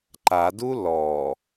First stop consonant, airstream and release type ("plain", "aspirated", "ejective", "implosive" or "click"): click